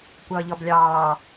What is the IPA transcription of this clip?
kʷ ʌː ʎ ɔ b lʲ ɑː

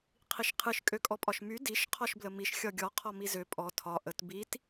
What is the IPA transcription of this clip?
qʰ i ʃ qʰ ɨ ʃ kʼ ø kʼ ɔ pʼ ɒ ʃ m y d i ʃ qʰ ɔ ʃ b l ə m i ʃ xʲ ɒ ɡʲ ɔ qʰ ɔ m i z ø pʼ ɔ tʰ ɒ ʔ ə t b i t

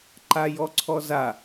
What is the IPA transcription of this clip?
ǃ a j ɔ ǀʰ ɔ z a

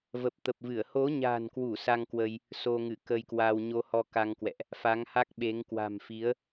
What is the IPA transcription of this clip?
v ə˨˩ p̚ t̪ ə˨˩ p̚ v ɨ˧˩ ə̯ h o˨˦ ɲ a̤˨˩ n k w u˧˩ s a˧ ŋ k w ə˧ j | s o˧ ŋ ɨ˧˩ k ə˧ j k w a˧ w ɲ o˧ h ɔ˧ k a˧ ŋ k w ɛ̰˧˨ ʔ | f a˨˦ ŋ h a˦˥ k̚ ɓ e˨˦ ŋ k w a̤˨˩ m f i˨˦ ə̯

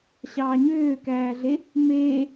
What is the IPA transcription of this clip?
ɕ ɑː ɲ øː k æː ɮ e | m eː

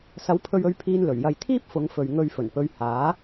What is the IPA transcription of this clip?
s ɐ˨˥ w pʰ ɵ˧ ɥ ɵ˧ ɥ pʰ iː˧ n l ɵ˨˩ ɥ j ɐ˧ j t̪ʰ iː˥ p̚ f ʊ˨˧ ŋ f ɵ˨ ɥ ŋ ɵ˧ ɥ f ɵ˨˩ n p ɵ˧ ɥ h aː˨˥

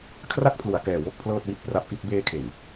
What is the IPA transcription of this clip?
kʰ r a˥˩ k̚ pʰ l u˨˩ a̯ k ɛː˨˩ w o˥˩ k̚ pʰ l ɤː˥˩ t̚ w i˥˩ t̚ p r a˦˥ p̚ ʔ i˥˩ t̚ b eː˧ kʰ e˨˩ n

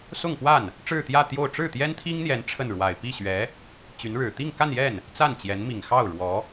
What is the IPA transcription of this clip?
s ʊ˥˧ ŋ p w a˥˩ n | ʈ͡ʂ ɻ̩˥˧ t̪ j ä˥˧ t̪ j o˥˧ ʊ̯ ʈ͡ʂ ɻ̩˥˩ t̪ j ɛ˥ n t̪ʰ i˥ ŋ n̪ j ɛ˧˥ n ʈ͡ʂʰ ə˥˩ n ɻ w a˨˩ ɪ̯ p i˥˩ ɕ ɥ ɛ˧˥ | t͡ɕ y˧˥ n ɻ ɻ̩˨˩ t̪ i˥˧ ŋ k a˥˧ n j ɛ˥˩ n | t͡s a˥˩ n t͡ɕ j ɛ˧˥ n m i˨˩ ŋ x ɑ˥˩ ʊ̯ ɻ w ɔ˧˥

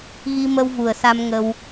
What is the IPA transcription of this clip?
ɣ i˧ m ə˧ w v u˨˩ ə̯ s a˧ m ŋ ə˧ w

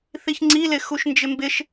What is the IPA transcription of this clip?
θ i ç ŋ͡ǀ i l ɪ x u ʃ n d͡ʒ ɪ m b ɪ ʃ

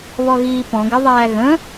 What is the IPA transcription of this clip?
β ɔ ɣ iː p ɔ̃ ɡ ɪ ðˤ æː ɣ ə̃

